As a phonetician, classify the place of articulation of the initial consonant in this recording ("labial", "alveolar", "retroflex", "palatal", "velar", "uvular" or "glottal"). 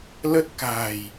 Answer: alveolar